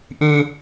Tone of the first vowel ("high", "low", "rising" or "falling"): high